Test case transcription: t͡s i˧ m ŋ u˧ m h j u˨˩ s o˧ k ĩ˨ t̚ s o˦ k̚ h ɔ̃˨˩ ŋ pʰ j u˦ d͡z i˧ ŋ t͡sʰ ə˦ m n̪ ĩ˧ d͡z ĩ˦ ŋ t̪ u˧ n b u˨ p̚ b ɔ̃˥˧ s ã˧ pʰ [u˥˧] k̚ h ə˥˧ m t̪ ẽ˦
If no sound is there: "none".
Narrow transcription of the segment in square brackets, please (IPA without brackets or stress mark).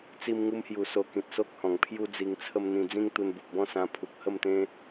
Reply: u˨